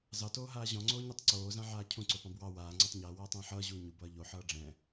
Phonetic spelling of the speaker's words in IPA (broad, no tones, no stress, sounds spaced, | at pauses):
z ɑ t oː ɦ aː ʑ ɔ̃ ŋ͡ǀ oː ɲ ɛ tˤ ǀ oː z ã ʕ aː cʰ ũ ǀ o p ɑ̃ b w ɑ w aː ŋ͡ǀ ɔ tˤ ɲ ʌː w ʌː tˤ ɛ̃ː ħ ʌː ʑ uː ɲ u b ʌː ʎ o ħ ʌː ɖ͡ʐ ɛ̃